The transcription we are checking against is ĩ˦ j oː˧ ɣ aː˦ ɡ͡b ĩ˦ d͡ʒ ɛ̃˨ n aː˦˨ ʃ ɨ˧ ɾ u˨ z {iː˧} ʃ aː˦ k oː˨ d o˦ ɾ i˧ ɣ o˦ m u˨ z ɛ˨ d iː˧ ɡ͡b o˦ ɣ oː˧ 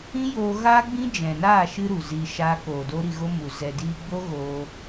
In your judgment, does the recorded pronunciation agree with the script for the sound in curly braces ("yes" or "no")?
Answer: no